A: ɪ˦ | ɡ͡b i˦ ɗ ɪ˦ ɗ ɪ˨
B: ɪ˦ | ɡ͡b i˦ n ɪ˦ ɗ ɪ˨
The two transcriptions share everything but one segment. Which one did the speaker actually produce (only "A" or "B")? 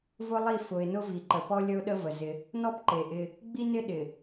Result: B